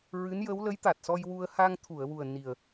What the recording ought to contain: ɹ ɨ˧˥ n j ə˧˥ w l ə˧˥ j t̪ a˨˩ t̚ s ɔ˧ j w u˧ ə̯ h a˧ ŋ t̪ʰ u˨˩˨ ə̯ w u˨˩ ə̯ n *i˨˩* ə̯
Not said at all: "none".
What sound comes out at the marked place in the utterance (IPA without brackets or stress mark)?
i˨˩